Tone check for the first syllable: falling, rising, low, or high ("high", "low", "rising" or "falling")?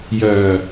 low